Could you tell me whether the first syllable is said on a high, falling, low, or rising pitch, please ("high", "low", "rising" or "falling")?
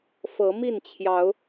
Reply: rising